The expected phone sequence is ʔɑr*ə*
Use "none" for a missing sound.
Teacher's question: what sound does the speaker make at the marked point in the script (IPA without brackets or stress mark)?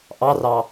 ɑ